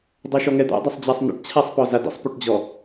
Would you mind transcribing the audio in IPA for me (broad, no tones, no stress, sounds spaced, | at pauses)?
dˤ ɤ ʃ ɔ ŋ ɛ d̪ a̰ dˤ ɛ sˤ d͡ʑ a sˤ n ə̰ ʈ t͡ɕʰ a sˤ p ɔ z a d ə̰ sˤ p u ʈ d͡ʑ ɔ